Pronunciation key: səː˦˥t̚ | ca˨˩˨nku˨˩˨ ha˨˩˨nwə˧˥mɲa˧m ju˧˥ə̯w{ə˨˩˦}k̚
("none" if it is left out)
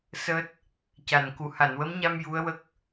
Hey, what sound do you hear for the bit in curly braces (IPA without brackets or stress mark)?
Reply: ə˦˥